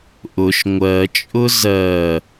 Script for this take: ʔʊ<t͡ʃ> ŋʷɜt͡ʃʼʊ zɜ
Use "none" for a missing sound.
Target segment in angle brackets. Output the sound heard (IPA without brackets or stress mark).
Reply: ʃ